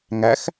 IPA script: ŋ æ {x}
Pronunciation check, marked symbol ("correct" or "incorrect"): correct